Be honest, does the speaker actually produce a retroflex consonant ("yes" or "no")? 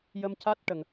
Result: yes